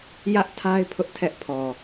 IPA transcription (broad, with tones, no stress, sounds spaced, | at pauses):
j ä˦ ʔ tʰ a˦ ɪ̯ pʰ ʊ˦ ʔ tʰ ɛ˦ ʔ pʰ ɔ˨